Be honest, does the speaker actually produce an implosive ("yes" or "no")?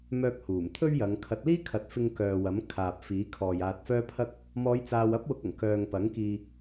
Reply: no